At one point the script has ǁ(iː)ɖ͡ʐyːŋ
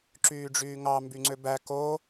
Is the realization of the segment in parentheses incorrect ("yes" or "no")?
yes